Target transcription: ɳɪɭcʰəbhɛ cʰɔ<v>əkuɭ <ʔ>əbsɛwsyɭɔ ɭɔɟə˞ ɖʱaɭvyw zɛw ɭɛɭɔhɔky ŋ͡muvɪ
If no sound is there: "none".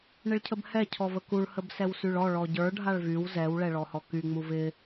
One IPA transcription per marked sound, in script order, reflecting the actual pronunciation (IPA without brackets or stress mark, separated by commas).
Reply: v, h